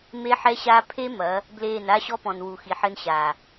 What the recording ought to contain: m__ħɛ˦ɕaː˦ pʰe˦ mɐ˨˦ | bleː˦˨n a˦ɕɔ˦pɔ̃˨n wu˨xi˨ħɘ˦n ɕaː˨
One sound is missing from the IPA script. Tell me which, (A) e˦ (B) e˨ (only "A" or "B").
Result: A